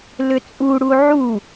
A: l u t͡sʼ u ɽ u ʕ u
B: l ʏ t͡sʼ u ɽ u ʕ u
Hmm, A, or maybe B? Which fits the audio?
B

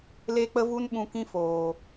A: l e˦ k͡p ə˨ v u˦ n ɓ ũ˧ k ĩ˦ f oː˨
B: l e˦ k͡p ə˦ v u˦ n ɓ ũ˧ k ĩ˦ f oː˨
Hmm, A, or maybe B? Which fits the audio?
B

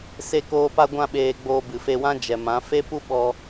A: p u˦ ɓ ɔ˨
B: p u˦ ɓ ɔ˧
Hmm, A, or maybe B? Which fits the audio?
B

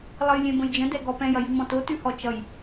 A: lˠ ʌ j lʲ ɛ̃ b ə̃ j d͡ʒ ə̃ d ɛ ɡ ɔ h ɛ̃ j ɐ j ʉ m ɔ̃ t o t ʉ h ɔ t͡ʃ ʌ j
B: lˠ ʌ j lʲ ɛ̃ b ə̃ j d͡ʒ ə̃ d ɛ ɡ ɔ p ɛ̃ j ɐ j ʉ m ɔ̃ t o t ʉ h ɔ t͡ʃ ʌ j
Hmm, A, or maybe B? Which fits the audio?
B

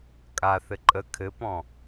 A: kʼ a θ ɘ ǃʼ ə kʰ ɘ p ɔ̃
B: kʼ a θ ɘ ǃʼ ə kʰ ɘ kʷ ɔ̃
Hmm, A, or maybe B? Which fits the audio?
A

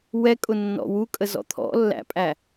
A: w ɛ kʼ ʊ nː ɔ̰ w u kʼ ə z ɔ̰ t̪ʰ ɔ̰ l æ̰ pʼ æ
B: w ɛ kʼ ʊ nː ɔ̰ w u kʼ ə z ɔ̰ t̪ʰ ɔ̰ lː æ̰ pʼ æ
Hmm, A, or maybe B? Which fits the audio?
B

